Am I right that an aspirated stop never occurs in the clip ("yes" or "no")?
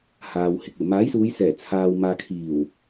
no